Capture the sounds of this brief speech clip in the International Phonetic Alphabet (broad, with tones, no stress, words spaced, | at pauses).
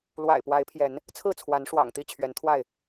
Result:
lwa̰˨˩ɪ̯ pwa˨˦ɪ̯pʰjɛ˨˦n | t͡sʰɹ̩˥˨t͡sʰwa˨˦n ʂwɑ̰˨˩ŋt̪i˥˨t͡ɕʰɥɛ˨˦n t̪ʰwa˥˨ɪ̯